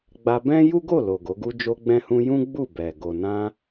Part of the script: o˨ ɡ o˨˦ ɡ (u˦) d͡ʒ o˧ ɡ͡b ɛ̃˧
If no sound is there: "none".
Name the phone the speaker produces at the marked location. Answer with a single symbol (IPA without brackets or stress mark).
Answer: u˦